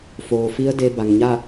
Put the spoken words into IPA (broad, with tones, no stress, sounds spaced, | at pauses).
f oː˩ f i˧˥ ə̯ d e˧ b a˩ ŋ ɲ a˥˨